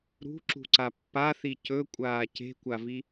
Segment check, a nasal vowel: absent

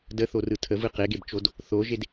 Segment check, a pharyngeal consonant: absent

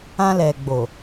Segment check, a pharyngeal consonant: absent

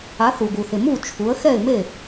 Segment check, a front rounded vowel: absent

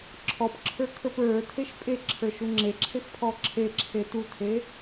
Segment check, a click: present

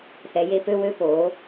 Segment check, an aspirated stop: absent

